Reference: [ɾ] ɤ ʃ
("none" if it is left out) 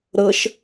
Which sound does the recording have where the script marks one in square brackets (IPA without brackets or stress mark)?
ɾ